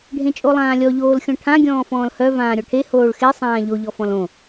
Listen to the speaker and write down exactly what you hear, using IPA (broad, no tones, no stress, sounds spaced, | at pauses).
ɖʱ ẽ t͡ʃʼ o lˠ ãː lʲ ɔ ʎ oː l xʲ ɔ̃ ʈʰ ã ɡʲ ɔ̃ː f ɔ̃ː l h œ v ãː ɾʲ ɔ ʈʰ e h oː ɭ x e sˤ ãː ʎ o ʎ ɔ f ɔ̃ l õ